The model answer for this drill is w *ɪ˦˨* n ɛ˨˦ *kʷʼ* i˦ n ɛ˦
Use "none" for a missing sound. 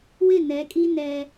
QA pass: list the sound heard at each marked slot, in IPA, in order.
ɪ˦˨, kʼ

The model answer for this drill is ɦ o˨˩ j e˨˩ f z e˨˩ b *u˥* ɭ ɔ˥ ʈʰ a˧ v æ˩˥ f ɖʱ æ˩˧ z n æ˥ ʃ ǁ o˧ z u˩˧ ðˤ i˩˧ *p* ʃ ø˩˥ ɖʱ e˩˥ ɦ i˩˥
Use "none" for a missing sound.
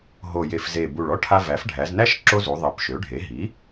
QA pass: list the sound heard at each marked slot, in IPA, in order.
u˨˩, p

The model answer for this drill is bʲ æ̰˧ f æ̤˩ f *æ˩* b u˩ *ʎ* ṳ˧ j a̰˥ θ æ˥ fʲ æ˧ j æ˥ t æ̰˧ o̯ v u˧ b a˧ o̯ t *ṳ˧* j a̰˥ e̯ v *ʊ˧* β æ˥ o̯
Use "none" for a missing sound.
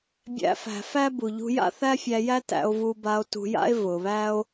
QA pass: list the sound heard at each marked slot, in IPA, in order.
æ˥, ʎ, ṳ˧, ʊ˩

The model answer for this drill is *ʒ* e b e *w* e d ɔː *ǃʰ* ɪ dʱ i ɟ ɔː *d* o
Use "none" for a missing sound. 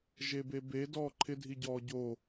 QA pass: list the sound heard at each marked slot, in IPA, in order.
ʒ, b, ǃʰ, ɟ

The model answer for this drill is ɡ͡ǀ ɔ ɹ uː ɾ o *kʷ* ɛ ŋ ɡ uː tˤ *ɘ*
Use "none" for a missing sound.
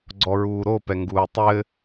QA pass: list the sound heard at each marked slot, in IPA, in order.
p, ɘ

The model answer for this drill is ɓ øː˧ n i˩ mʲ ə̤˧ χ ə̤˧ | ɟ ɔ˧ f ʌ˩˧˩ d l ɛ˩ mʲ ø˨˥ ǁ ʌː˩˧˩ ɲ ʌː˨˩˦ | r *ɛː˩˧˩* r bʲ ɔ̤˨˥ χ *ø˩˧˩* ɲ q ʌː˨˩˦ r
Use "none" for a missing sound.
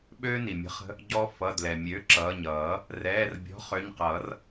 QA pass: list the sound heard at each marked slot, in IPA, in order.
ɛː˩˧˩, ø˩˧˩

